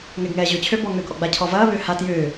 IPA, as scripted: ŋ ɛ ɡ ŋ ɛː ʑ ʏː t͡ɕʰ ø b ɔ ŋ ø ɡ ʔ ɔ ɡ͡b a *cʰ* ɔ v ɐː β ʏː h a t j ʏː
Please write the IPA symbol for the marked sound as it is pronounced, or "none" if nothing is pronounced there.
cʰ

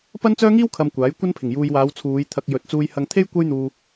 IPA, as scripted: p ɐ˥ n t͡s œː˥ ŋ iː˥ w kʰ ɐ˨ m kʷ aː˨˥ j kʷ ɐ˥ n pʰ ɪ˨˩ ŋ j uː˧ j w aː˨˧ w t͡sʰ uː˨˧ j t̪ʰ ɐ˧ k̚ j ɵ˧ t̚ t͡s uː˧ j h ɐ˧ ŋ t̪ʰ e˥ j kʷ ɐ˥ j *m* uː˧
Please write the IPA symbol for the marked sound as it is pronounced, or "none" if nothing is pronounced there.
n̪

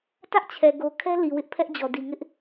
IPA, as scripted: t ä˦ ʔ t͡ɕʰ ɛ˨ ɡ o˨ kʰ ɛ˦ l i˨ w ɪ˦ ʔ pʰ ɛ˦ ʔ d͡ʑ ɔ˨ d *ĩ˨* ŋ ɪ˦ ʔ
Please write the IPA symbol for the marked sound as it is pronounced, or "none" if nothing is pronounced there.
i˨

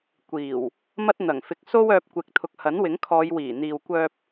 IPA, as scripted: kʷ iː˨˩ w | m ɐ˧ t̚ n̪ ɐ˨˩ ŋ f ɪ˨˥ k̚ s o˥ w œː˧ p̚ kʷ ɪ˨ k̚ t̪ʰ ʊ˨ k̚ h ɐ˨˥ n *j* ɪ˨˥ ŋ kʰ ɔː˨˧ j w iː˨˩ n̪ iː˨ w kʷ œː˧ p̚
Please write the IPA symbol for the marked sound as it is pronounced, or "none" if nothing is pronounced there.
w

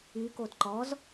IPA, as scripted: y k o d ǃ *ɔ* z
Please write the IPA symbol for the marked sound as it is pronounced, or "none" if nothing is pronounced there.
ɔ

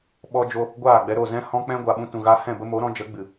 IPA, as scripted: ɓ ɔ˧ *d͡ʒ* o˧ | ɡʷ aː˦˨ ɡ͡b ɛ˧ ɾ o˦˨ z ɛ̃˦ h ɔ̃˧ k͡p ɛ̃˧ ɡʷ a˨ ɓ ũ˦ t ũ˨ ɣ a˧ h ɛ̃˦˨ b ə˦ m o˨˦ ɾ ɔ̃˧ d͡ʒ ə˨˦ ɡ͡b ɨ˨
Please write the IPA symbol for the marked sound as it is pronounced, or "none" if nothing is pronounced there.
d͡ʒ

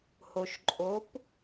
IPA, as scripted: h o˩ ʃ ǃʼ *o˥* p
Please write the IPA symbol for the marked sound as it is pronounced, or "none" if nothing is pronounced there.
o˩˧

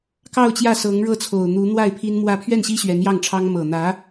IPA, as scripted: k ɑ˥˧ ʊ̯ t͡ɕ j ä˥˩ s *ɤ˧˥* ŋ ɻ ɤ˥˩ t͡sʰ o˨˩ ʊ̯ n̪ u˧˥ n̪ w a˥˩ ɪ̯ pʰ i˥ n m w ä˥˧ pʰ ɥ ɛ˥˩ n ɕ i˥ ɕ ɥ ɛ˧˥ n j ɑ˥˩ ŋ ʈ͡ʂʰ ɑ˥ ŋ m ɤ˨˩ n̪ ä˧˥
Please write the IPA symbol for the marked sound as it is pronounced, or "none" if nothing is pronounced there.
ɤ˧˥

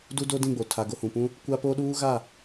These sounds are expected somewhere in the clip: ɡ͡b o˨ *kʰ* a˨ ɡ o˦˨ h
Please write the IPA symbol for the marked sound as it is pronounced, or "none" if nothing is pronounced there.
tʰ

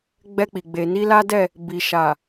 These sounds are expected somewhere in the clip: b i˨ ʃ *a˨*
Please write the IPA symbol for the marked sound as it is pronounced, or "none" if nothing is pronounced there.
a˨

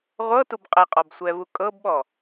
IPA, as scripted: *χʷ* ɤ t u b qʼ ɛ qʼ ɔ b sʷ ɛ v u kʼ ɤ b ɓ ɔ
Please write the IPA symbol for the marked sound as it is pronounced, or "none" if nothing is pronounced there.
ʁʷ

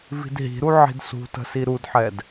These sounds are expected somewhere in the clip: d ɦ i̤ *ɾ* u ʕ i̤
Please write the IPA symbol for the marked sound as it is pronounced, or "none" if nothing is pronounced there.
ɾ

